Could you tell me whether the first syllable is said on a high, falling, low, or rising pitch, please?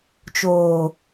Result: low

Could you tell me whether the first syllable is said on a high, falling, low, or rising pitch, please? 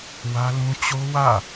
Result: high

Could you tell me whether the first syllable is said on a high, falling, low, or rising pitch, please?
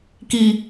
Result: low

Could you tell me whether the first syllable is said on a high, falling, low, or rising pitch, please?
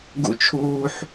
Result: high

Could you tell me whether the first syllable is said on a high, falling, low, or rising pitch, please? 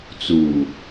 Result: low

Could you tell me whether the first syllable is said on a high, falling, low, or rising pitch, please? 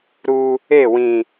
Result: high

